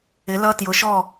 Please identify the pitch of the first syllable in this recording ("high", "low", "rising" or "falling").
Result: rising